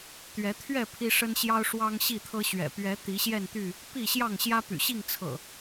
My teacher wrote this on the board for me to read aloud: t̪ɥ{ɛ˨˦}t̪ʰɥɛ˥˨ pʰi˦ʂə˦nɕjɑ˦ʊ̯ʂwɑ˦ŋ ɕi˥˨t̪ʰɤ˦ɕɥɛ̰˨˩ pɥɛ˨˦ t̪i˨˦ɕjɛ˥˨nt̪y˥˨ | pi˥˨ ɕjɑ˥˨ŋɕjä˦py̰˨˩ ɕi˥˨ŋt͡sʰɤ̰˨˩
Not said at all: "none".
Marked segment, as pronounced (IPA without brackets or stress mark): ɛ˨˦